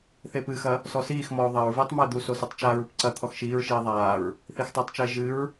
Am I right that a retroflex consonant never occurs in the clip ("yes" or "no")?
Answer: yes